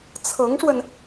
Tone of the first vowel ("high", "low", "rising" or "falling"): rising